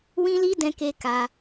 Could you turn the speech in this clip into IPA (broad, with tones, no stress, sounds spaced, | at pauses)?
w ĩ˦ l i˦ d ɛ̃˧ k e˧ k a˧